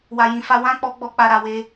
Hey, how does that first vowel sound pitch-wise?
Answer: low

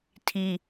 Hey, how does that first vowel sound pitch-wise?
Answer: high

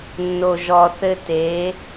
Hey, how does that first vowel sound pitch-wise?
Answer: low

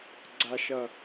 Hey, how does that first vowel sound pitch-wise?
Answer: low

